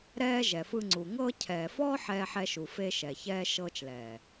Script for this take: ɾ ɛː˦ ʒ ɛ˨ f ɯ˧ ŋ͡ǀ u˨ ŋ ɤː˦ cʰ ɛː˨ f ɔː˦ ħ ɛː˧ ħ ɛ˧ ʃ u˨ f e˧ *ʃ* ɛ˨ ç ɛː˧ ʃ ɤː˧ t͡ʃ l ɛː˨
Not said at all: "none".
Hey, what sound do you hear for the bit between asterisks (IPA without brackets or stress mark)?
ʃ